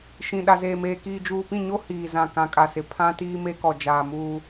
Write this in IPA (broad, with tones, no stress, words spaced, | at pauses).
ʃĩ˨ ɗa˨zeː˨meː˨ kiː˨d͡ʒuː˨pĩ˦˨ɲo˦ hiː˨ zã˨kã˨kʼa˨sɪ˨ pʰã˦tiː˦me˦kɔ˨ d͡ʒaː˨muː˦